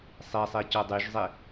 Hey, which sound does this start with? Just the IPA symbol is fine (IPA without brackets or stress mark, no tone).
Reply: sˤ